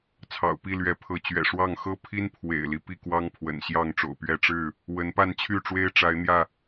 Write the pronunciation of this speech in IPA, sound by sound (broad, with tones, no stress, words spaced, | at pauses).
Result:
t͡sʰɑ̰˨˩ʊ̯pi˥˨ lɥɛ˨˦pʰɤ˨˦ t͡ɕɥɛ̰˨˩ʂwɑ˥˨ŋ xɤ˦ pʰi˦npʰwḛ˨˩ɪ̯li˦ pi˥˨kwɑ˦ŋ pʰwə̰˨˩nɕjɑ˥˨ŋʈ͡ʂo̰˨˩ʊ̯pɥɛ˥˨ ʈ͡ʂɻ̩˥˨ | wə˨˦npa˥˨nt͡ɕʰy˥˨ʈ͡ʂwe˦ɪ̯ ʈ͡ʂa˨˦ɪ̯n̪jä˥˨